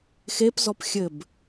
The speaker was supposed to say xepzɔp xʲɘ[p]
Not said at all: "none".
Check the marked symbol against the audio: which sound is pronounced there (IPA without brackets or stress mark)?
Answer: b